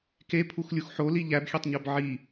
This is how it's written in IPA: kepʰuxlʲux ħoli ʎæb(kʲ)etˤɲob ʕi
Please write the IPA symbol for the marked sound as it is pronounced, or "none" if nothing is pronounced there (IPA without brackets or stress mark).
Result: xʲ